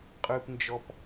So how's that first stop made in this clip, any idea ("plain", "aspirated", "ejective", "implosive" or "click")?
ejective